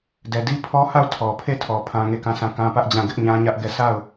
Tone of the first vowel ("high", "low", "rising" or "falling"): low